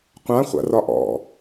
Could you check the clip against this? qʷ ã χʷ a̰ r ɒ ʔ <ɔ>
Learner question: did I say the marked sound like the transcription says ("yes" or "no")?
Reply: no